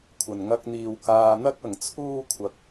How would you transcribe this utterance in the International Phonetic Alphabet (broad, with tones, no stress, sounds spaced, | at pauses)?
kʷʰ ɐ˨ n ŋ ɐ˧ k̚ n̪ iː˨ w k aː˧ n̪ ɐ˥ k̚ ɐ˨ ŋ t͡sʰ uː˥ kʷʰ ɐ˧ k̚